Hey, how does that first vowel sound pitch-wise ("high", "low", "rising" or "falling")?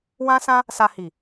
high